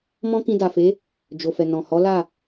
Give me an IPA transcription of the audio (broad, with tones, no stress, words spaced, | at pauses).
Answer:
mɔ̃˦kĩ˧da˨fe˨˦ | d͡ʒo˨fɛ˨nɔ̃˨ hɔ˨˦la˦˨